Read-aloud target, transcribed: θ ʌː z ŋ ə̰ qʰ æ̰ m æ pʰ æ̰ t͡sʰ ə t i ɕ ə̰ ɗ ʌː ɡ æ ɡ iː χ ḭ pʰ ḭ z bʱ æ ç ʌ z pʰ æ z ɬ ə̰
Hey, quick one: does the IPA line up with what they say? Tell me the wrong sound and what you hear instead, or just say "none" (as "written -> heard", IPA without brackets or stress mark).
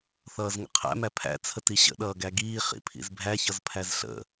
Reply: none